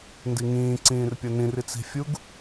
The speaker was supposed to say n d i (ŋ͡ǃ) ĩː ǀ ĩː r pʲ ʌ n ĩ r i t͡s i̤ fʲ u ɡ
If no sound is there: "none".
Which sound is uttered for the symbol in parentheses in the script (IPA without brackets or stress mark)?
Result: ŋ